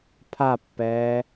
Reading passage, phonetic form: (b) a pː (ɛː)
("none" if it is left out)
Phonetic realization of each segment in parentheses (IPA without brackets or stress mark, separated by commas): pʰ, ɛː